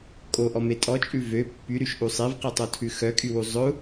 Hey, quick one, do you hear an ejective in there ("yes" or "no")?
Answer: yes